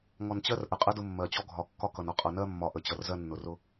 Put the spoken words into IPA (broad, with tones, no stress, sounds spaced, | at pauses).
ŋ ɔ˨ n t͡ɕ ɜ˦ r ʔ ə˨ qʼ ə˦ d ʊ˦ mː ɜ˨ t͡ɕ ɔ˦ ɡʱ ɒ˨ kː ɒ˦ k ʌ˨ n ɒ˦ qʼ ʌ˨ n ɜ˦ mː ɒ˨ ʔ ə˨ t͡ɕ ʌ˨ r z ɜ˦ nː ʊ˨ r ʊ˦